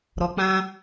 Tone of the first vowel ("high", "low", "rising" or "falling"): low